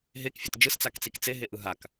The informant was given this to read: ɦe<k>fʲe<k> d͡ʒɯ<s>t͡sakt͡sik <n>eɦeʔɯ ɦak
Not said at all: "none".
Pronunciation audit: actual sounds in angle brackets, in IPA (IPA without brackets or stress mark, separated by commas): k, t, s, t͡s